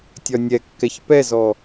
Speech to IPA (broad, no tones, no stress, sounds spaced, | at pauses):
tʲ ɒ nʲ ɛ kː ɛ ç p ɛ z ɔ